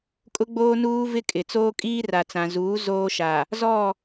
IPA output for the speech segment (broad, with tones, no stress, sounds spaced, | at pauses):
kʼ ʊ˦ ɡ͡b oː˦ n uː˦ v ɪ˦ kʼ ɪ˨ t͡s oː˦ kʼ iː˦ r a˨ t͡s ã˨ z uː˨˦ z oː˦ ʃ a˨ | z ɔ˦˨